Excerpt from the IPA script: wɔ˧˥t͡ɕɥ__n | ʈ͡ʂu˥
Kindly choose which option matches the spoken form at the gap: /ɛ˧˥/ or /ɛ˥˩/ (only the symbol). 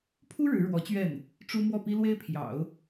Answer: ɛ˥˩